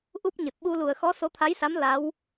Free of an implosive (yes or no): no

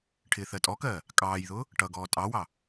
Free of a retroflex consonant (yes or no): no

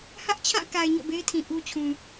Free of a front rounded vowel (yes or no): yes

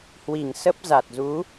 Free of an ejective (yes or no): yes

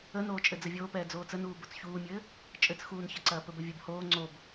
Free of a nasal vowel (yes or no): yes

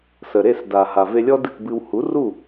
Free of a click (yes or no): yes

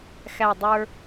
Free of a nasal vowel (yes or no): yes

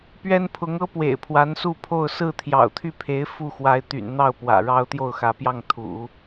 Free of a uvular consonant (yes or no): yes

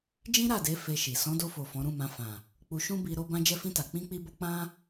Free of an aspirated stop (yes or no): yes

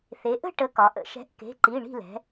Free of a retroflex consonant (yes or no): no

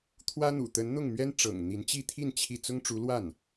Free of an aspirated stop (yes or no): no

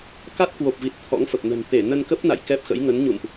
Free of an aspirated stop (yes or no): no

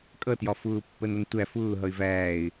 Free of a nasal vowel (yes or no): yes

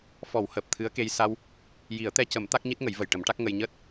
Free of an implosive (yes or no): yes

